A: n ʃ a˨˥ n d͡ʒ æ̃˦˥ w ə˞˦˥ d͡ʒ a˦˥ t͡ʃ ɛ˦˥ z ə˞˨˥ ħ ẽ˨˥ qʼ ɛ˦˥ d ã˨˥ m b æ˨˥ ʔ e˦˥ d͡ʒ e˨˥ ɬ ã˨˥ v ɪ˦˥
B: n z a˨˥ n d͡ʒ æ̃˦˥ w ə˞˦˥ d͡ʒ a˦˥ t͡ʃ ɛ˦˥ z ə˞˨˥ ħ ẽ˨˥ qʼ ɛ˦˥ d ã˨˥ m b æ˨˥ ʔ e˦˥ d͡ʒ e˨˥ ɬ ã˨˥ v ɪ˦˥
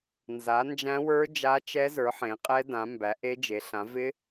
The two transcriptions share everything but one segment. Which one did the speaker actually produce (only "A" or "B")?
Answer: B